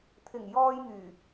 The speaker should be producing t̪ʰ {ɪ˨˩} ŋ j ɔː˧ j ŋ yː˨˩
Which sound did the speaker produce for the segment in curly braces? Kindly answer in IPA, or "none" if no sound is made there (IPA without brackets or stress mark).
ɪ˨˩